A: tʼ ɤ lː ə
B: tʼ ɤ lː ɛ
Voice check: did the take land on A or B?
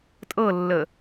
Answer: A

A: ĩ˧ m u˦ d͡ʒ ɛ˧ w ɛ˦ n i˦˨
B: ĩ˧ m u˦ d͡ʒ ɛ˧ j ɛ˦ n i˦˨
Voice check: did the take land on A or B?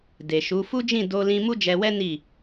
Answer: A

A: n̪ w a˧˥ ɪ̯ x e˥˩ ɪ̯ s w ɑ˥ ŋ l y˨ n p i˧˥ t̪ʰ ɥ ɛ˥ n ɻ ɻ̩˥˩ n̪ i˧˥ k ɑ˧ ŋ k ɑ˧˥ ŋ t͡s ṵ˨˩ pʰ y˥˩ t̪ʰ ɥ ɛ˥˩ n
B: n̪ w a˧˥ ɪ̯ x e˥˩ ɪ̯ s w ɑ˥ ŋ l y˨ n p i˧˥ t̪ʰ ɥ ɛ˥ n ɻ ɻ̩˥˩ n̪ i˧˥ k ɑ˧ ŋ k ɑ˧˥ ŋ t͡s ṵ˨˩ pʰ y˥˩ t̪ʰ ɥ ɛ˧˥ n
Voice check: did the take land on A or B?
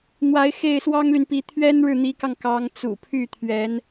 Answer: B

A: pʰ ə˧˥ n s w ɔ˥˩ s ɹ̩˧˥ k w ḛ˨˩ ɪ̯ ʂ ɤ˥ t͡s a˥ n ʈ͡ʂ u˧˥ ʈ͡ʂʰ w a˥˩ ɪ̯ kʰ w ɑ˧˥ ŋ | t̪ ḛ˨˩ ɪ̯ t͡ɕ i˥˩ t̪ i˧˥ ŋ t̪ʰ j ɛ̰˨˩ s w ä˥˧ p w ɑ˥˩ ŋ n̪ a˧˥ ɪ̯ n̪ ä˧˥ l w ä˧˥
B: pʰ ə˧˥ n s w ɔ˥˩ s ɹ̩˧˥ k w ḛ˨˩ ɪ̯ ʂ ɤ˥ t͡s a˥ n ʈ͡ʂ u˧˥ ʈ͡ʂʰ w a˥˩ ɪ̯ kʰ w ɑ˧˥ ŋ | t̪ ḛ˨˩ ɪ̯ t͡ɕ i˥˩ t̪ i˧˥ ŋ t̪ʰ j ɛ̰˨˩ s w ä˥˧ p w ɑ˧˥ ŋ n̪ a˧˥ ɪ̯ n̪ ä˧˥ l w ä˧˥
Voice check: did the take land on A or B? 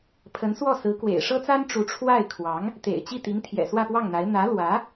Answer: A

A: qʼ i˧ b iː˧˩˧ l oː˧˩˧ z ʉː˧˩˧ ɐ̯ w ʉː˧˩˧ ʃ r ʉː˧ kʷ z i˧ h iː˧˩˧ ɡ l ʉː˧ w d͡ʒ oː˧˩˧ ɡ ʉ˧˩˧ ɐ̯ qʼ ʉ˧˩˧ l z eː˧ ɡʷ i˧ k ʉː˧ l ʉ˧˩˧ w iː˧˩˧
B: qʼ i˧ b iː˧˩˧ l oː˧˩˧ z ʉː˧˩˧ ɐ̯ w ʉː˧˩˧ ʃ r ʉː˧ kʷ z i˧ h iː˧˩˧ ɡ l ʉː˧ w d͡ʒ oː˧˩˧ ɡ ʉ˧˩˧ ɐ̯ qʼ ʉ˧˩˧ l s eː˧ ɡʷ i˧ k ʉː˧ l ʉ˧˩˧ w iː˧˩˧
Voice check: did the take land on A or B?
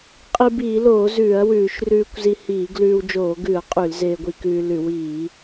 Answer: A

